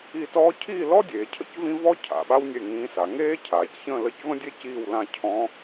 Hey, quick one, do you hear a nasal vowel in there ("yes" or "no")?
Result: yes